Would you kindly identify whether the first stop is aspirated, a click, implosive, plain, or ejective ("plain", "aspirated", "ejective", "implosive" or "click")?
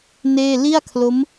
aspirated